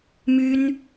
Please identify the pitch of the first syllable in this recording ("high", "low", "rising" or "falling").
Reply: high